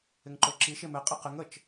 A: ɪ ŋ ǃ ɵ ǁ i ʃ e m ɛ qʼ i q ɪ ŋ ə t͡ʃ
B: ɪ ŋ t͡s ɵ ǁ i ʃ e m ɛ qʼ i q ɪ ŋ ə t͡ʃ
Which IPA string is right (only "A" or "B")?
A